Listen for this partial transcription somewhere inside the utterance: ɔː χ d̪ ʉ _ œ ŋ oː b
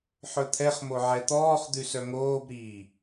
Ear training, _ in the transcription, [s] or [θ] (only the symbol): s